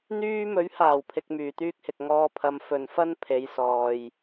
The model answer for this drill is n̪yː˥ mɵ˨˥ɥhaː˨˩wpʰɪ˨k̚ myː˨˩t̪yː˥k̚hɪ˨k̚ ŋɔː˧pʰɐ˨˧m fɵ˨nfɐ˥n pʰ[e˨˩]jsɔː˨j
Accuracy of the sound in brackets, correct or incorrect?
incorrect